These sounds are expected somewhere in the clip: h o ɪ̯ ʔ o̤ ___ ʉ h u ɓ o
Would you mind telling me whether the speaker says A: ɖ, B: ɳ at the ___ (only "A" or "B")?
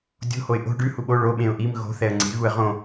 A